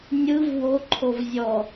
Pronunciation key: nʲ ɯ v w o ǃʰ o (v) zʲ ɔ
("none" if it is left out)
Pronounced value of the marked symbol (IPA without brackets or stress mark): v